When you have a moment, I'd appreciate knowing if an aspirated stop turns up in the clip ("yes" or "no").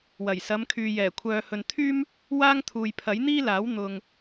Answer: yes